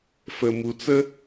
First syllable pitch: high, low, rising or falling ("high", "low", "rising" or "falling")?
low